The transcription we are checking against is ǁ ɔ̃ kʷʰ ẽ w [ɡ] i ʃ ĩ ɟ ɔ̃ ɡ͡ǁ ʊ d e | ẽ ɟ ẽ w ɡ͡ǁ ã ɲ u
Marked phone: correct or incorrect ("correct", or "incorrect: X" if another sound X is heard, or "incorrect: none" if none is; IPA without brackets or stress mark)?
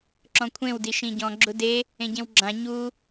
incorrect: d